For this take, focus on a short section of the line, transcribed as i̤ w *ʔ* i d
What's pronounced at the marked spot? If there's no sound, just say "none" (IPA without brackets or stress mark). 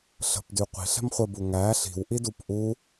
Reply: ʔ